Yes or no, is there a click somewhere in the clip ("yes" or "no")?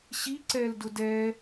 yes